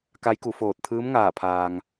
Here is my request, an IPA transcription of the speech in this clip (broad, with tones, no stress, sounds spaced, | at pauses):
k a˧˥ j k u˩˧ f oː˧˩ t̚ t̪ʰ ɯː˧˥ m ŋ aː˧˩ pʰ aː˩ ŋ